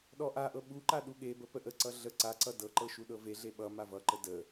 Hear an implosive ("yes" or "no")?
yes